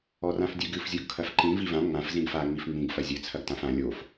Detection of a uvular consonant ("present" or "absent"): absent